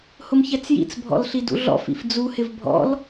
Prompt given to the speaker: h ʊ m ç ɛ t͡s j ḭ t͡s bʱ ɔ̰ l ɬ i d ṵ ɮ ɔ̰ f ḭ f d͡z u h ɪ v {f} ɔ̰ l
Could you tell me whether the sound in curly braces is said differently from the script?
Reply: yes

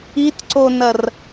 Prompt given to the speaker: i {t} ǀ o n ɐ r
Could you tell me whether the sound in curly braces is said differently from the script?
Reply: no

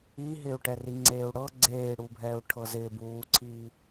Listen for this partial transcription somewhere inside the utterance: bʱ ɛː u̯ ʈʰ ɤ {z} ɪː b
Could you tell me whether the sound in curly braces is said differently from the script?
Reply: no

